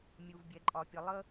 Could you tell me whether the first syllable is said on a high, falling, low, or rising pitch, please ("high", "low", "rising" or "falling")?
low